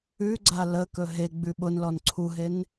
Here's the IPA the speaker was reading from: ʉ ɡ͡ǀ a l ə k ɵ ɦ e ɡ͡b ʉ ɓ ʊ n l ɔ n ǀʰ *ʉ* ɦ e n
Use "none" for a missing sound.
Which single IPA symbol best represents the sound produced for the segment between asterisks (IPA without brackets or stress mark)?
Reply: u